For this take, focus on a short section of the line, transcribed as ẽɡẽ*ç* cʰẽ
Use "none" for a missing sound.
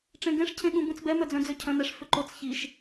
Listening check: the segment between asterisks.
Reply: ʂ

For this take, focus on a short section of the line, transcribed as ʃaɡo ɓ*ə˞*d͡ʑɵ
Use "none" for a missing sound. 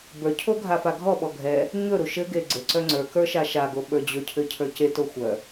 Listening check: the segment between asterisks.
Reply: ə˞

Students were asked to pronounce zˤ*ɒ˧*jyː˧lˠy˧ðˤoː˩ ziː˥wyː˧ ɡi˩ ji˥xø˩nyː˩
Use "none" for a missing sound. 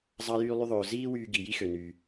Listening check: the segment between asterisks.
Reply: ɑ˧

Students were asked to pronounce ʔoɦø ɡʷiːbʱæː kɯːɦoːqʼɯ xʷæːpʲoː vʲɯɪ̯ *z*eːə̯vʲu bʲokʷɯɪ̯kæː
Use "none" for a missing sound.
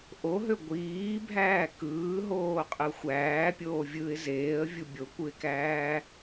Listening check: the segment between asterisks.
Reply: z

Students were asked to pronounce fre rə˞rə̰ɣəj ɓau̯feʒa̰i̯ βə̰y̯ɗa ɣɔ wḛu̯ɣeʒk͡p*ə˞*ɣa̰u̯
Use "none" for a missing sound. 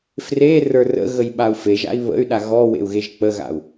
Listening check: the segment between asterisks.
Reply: ə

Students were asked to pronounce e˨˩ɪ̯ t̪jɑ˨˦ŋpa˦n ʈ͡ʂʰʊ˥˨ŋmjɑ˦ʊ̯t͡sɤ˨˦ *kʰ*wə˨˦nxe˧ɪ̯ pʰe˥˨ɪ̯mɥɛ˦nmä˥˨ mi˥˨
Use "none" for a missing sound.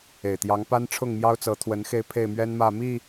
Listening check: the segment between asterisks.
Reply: t̪ʰ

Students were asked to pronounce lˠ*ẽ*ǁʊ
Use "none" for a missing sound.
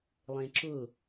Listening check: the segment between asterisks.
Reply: ẽ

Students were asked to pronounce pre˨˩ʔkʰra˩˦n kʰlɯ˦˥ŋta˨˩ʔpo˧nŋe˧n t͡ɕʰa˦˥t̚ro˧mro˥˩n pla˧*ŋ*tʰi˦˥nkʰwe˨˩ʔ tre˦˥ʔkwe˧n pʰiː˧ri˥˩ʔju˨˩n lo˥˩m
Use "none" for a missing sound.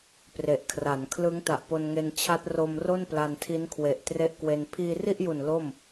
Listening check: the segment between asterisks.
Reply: n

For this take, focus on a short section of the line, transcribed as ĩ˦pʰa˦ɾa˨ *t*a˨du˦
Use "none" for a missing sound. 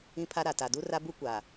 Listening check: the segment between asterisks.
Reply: t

